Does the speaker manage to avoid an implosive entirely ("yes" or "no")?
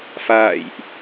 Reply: yes